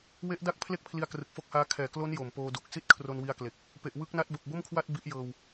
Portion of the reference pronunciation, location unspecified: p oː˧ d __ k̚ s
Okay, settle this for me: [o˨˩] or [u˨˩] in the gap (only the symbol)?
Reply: u˨˩